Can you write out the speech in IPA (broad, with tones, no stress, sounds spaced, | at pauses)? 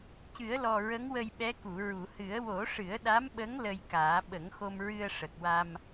c ɨ˨˩˦ ə̯ l ɔ˨˩ ɹ ə˧˥ ŋ w ə˧ j ɓ ɛ˧˥ k u˨˩˨ ɹ u˨˩˨ h ɨ˨˩˦ ə̯ w o˨˩˦ ʂ ɨ˨˩˦ ə̯ ɗ a˧˥ m ɓ ə˧˥ ŋ l ə˧ j k aː˨˩˦ ɓ ə˨˩˦ ŋ x o˧ m ɹ ɨ˧ ə̯ ʂ ə˨˩ k̚ w a˧ m